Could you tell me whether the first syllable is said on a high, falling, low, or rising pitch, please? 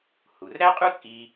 low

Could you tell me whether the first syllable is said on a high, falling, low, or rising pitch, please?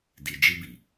low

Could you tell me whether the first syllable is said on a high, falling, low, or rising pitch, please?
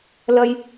high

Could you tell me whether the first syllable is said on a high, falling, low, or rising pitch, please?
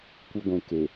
high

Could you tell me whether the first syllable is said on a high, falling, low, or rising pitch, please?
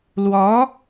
rising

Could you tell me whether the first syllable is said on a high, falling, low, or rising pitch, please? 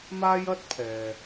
high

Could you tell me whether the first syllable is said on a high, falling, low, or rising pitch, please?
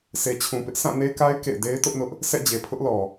low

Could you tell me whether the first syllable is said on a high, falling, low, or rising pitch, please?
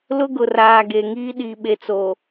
high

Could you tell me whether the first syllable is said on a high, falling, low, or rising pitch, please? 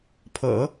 low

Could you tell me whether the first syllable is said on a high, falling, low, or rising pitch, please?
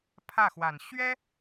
falling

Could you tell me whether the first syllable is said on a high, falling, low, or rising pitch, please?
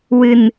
low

